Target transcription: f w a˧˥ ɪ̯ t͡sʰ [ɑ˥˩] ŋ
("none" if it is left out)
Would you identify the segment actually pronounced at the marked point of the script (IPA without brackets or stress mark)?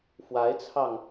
ɑ˧